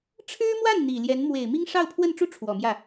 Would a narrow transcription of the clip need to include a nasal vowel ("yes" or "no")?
no